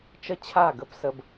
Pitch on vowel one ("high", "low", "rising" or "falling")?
falling